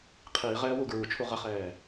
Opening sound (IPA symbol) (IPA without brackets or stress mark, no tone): qʰ